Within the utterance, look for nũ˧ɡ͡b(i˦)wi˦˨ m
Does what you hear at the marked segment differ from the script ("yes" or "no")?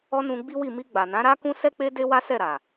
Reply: no